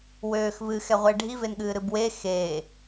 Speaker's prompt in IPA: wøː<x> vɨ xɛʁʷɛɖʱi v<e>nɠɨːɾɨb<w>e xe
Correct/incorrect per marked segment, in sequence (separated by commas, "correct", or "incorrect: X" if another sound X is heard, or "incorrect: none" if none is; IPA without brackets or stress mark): correct, correct, correct